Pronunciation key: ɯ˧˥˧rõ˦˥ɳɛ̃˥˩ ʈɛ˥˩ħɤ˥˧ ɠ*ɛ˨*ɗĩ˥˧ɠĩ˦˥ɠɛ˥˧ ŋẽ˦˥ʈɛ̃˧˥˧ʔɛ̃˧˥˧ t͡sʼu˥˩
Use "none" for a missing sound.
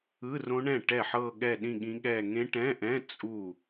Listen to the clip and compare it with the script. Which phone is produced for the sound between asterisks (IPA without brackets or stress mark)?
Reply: ɛ˥˧